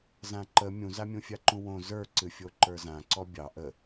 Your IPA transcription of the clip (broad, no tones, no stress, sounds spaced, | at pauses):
z ã ǃ ə mʲ ũ z a mʲ ũ fʲ a ǃ ũ w õ z ə˞ ǀ ɨ fʲ o ǃ ə˞ z ã ǀ ɔ bʲ ɑ ʔ ə